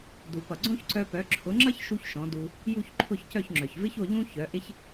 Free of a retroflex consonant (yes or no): yes